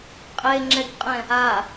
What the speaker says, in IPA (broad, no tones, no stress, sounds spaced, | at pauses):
qʼ e ŋ͡ǁ ɛ ɡ qʼ ɛ̃ | a